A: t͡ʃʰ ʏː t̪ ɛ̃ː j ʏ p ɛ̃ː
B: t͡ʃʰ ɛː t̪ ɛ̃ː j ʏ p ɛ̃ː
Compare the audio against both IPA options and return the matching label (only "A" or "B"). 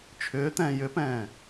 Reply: A